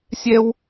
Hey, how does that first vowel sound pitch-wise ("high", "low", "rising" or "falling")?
high